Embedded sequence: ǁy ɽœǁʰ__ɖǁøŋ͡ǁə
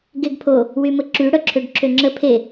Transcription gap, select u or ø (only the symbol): ø